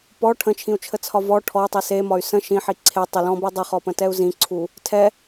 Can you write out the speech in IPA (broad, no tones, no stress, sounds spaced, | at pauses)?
p ɔ ʈʰ ə̃ t͡ʃʰ ĩ u̯ t͡ʃʰ ə t͡sʰ ɒ v ɔ ʈʰ ɔ y̯ tˤ i s e m ɒ y̯ s ə̃ ʃ ĩ ħ i ǀʰ e tˤ ə l ɔ̃ b i dˤ i χ ɔ p ə̃ t ɛ u̯ z ĩ ǀʰ u | tʰ ɛ